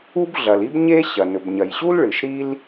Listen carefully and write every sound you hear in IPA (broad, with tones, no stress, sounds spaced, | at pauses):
u˥ b ɮ ɐ˩ l i˥ b ɲ e˥ ɕ ɐ˩ n ɵ˩ b ɲ ɐ˩ j ɕ u˥ l ɭ ɨ˩ ʃ ɾ i˥ l